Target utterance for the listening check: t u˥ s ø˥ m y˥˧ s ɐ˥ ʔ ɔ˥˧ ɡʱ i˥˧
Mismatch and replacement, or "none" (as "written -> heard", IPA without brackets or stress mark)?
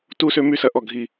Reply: none